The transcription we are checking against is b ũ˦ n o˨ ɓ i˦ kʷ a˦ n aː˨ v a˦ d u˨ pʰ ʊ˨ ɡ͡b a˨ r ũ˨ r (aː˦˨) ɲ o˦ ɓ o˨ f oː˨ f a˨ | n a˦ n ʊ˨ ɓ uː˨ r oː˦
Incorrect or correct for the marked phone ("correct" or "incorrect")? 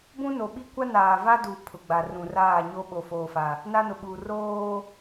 correct